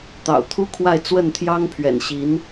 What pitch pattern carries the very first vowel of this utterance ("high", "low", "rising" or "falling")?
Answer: low